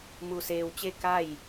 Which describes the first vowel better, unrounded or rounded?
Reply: rounded